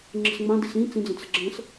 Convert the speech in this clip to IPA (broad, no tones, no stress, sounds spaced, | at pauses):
ŋ͡ǁ ə̤ s ŋ͡m ã d i s ĩ t͡s ĩ d͡z ə̃ t͡s ə̤ ɡ͡ǁ ə̃ s